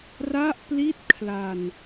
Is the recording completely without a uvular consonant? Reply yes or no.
yes